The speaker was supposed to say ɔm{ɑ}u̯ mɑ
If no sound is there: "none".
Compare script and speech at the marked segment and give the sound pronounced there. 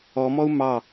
ɔ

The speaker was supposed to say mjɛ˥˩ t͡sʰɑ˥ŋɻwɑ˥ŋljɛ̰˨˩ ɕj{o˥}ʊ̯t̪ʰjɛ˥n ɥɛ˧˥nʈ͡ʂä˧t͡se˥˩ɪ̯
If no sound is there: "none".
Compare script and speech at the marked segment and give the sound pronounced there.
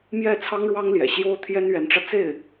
o˥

